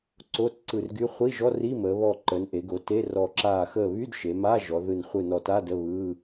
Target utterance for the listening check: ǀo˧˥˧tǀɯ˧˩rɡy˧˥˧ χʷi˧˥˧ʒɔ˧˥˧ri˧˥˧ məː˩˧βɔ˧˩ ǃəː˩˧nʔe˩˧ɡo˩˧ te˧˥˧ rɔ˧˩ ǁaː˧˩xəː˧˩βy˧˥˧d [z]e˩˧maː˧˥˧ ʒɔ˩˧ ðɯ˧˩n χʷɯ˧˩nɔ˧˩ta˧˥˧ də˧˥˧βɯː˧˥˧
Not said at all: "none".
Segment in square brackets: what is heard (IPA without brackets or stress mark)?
ʃ